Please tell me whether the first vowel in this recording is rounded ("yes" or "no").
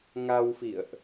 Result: no